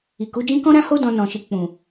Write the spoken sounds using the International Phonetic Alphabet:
i˨ k u˨˦ d͡ʒ ĩ˦ k ɔ̃˦ ɾ ã˦ h o˦ d ɔ̃˧ n ɔ̃˨ ʃ i˨ k͡p ũ˨

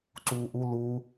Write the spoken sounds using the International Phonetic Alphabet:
ǀ uː ʔ u l u

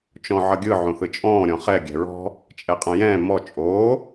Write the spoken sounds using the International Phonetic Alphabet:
t͡ʃ ɔ̃ ʕ ʌ ɡʲ ɯ ʕ õ θ ɯ t͡ʃʼ ɔ̃ː ɾʲ ɔ̃ χ ɛ ɡʲ ɛ̤ ɹ ɔ̤ | t͡ʃʼ ɛ qʼ ɐ̃ j ɛ̃ː m ɔ t͡ʃʼ oː

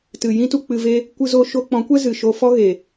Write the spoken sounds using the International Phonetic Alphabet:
t ɨ˨ j ĩ˦ t u˧ k͡p ɨ˧ v e˦ | kʷ ɨ˧ z o˧ ʃ o˧ k͡p ɔ̃˨˦ kʷ ɛ˦ z ɨ˨ ʃ o˧ f ɔ˦ ɣ e˨

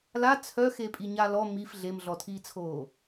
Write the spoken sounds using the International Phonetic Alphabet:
l a t͡sʰ œ x e pʼ i ɲ a l ɔ m i f ɮ e m ɮ ɔ tʰ iː t͡sʰ oː

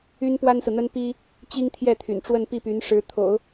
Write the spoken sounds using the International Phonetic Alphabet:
y˥ n p w a˥ n s ɹ̩˨ n̪ ə˥ n p i˥ | t͡ɕ i˥ ŋ t̪ʰ j ɛ˥˩ t̪ʰ y̰˨˩ n ʈ͡ʂ w ə˥˧ n p i˥˩ p y˧˥ n ʂ ɻ̩˧˥ t̪ʰ o̰˨˩˦ ʊ̯

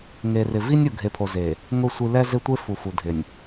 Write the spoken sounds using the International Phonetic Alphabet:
ŋ e˨ r ɪ˨ v i˦ nʲ u˨ ɡʱ e˨ pʰ o˨ z e˨ | ŋ ʊ˦˨ sʷ i˦ l ɛ˦ z e˦ tʷ e˦ f u˨ f u˨ dʱ ɪ˨ nʲ

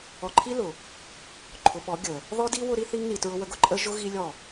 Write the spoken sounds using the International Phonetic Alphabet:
ɔ˨ ǃʰ i˦ l ʊ˨ | ǃʰ ʊ˨ ɓ ɔ˨˦ ɡʲ ə˨ | ð ɔ˦ d i˦ w ʊ˦ ɾ i˦ θ i˦ ŋ n i˨ t ɹ ʊ˦ w ə˦ ɡ ʊ˦ ǃʼ ə˦ ʒ ʊ˦ ɣ i˦ lʲ ɔ˦˨

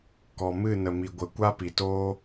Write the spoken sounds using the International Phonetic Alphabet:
k ɔ˨ m ɨ˦˨ n ə˨ m i˨ ɡʷ ə˨˦ kʷ a˦ p i˨ t oː˦

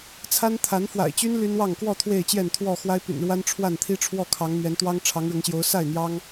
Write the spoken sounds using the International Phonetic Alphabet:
t͡sʰ a˦ n t̪ʰ a˨˦ n f w a̰˨˩ ɪ̯ t͡ɕ y˦ n l y˦ n w ɑ˥˨ ŋ k w ɔ˥˨ t̪ʰ w e˥˨ ɪ̯ t͡ɕ j ɛ˥˨ n t̪ʰ w ɔ˥˨ x w a˦ ɪ̯ p y̰˨˩ n ɻ w a˦ n ʈ͡ʂʰ w a˥˨ n t̪ʰ i˦ ʈ͡ʂʰ w ɔ˥˨ kʰ ɑ˨˦ ŋ n̪ ɥ ɛ˨˦ n t̪ w ɑ˦ ŋ ʈ͡ʂʰ ɑ˨˦ ŋ ɻ ʊ˨˦ ŋ ɕ j o˨˦ ʊ̯ s a˥˨ ɪ̯ n̪ j ɑ˦ ŋ

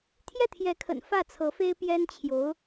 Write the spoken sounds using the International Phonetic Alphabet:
t̪ʰ j ɛ˥˩ t̪ʰ j ɛ˧˥ kʰ ə̰˨˩ n f ä˥˩ t͡sʰ ɤ˧˥ f e˥ ɪ̯ p j ɛ˥ n t͡ɕʰ j o˧˥ ʊ̯

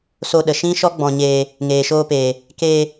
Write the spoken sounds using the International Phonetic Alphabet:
s o˧ ɗ ə˨ ʃ ĩ˦ ʃ ɔ˦ ɡ͡b ɔ̃˧ ɲ eː˧ | ŋ eː˨ ʃ oː˧ p eː˨ | k eː˧

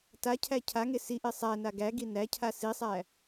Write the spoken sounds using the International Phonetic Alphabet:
t a cʰ æ cʰ a ŋ e s i ʔ e sˤ æ n a ɡ æ ɡ i n æ cʰ a s i sˤ æ

